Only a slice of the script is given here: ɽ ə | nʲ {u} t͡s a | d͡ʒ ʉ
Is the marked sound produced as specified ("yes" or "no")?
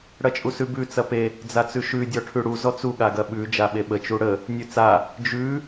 no